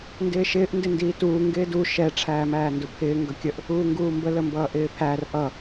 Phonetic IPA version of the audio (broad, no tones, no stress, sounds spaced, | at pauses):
n d ɪː ʃ ɪː ʔ n d ɪ n d iː t uː ŋ ɡ ɪː d u ʃ ɛ ʈ͡ʂʰ æː m æː n d ʊ pʰ ɪː ŋ ɡ ʌ kʲ ə ʔ | uː ŋ ɡ uː m b ə l ə m b ʌː ʔ ɪː pʰ æ r ʔ ʌ